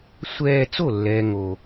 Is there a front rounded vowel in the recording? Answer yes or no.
no